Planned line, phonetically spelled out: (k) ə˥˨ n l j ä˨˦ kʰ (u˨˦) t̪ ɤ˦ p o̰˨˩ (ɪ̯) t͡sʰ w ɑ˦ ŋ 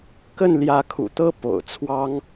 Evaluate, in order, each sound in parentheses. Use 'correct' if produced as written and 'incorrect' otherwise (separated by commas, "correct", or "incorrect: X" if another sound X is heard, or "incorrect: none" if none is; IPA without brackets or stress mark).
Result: correct, incorrect: ṵ˨˩, incorrect: ʊ̯